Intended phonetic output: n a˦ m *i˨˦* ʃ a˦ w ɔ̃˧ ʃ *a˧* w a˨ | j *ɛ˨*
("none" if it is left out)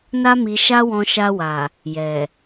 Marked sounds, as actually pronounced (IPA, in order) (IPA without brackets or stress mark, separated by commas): i˧, a˧, ɛ˨